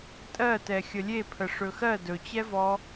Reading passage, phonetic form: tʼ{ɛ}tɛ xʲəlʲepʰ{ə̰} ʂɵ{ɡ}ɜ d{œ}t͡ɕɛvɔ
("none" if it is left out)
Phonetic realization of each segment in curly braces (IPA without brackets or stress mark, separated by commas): ɜ, ə, x, ɵ